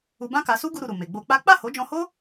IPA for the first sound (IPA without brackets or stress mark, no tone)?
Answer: u